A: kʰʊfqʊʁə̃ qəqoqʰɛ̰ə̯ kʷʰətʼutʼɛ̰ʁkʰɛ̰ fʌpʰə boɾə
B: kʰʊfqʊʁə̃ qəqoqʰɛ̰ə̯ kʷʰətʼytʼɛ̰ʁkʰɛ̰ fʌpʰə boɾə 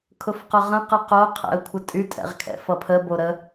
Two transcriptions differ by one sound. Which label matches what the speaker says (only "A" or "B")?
B